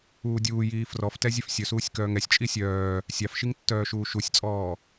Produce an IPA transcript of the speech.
uː dʲ uː j iː f r ɔ f t ɛ zʲ ɛ f sʲ ɵ s uː sʲ k œː ŋ ɛ sʲ t͡ʃʼ i sʲ œː | sʲ ɑ f ʃ i ŋ tː œː ʃ uː ʃ u sʲ t͡sʼ ɔː

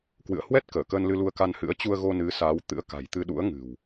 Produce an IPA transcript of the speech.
k w ɨ̰˧˨ ə̯ h w ɛ˦˥ t̚ k əː˧˩ k əː˧ n l ɨ˧ l u˧ ə̯ k a˧ n h ɨ̰˧˥ ə̯ t͡ɕ u˧ ə̯ ɣ o˧ n ɨ˨˦ s a˨˦ w t̪ ɨ̰˧˥ ə̯ k a̤˨˩ j t̪ ɨ˧ ɗ ṵ˧˥ ə̯ ŋ ɨ̤˨˩ w

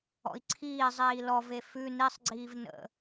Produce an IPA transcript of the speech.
ɔ̰ i̯ ǀʰ iː zˤ iː l ɔ v e f ʉ n i sˤ ɡ͡ǀ iː v n ə̰

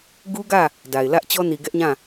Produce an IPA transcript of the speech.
ɡ u˦ ɡ ä˦˨ | d a˨ ɪ̯ l ä˦ ʔ t͡ɕ ɔ˦ n i˨ ɡ ɛ˦ ʔ ɲ ã˦˨

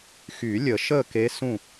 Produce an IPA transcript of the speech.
x y˨˩˦ lʲ ə˨˩˦ ʃ əː˥˩ k e˧˥ s ũ˥˩

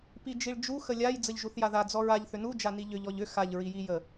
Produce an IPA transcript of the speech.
p i d͡ʒ i ɭ d͡ʒ u x ə lʲ a j d͡z ə ʎ ʒ u θ j a ð a d͡z ɔ ɹ a ʎ θ ʏ n u d͡ʒ a n i ʎ ʏ ʎ ɔ ʎ ʏ x a ʎ ɹ i j i j ə

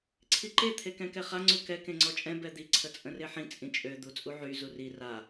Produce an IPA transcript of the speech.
ǀʰ i ǃ e t̪ʰ e k ɛ̃ k ɛ χ a ŋ͡ǀ u k ɛ k ẽ ŋ͡ǀ ɔ t͡ʃʼ ɛ̃ b ɛ d̪ i ǀʰ ə t͡sʼ ə̃ r e ħ ĩ t͡sʼ ĩ t͡ʃʼ ø d̪ u t͡sʼ u ʕ y z u r i r a

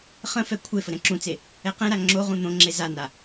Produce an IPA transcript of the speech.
χ ə̃ f ɛ kʷʰ e f ə ɾ ɛ̃ ǁ ũ t͡s e | ɛ q ɛ̃ ɾ a ŋ͡ǁ o ʁ ũ n̪ õ ŋ͡ǁ e z a n a

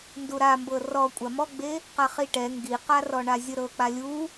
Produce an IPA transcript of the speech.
n d u ɾ a m b ɤ r ɔ kʷʼ a m ɔ ɡ͡b e | q a χ i ʈ ɛ ŋ ɡ i q a r ɔ ɳ a zʲ ɯ ɾ ɤ k͡p a lʲ u

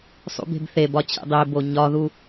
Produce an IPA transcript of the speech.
sˤ ṵ b e̤ b θ e b ɒ t͡ɕ ḛ dˤ e b o ɲ ɒ ð u

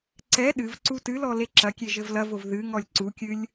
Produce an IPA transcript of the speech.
ǀ ɛ ɗ ɨ v ǀ u t ɨ l ɔ l e ǁ ɐ kʲ e ʒ ɘ v l ɐ v o v ð ɨ ŋ ɔ lʲ ǀ u kʲ ɨ lʲ

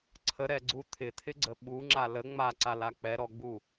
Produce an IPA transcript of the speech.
ǀʰ ə ɾ ɛ ɡ͡ǀ u t̪ʰ ɪ t̪ʰ ɪ ɡ͡ǀ ə ɓ u ŋ͡ǁ a l ə ŋ͡m a ǀ a l a k͡p ɛ ɾ ɔ ɡ͡b u

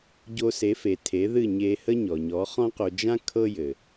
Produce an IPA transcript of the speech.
ɟ o˧ s e˩˥ f e˩ tʰ e˩˥ ð ɨ˥˩ ɲ e˧ h ə˥ ɲ ɔ˩ ɲ ɔ˩˥ χ ɔ̃˥ q o˧ d͡ʒ ã˥ kʰ ɤ˥ j ɘ˩

